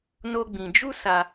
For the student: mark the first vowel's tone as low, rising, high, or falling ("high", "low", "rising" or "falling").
high